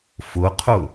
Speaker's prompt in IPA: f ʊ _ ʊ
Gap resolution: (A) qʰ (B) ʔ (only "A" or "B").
A